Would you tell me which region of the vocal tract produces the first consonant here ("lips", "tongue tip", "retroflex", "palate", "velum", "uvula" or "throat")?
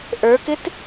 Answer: throat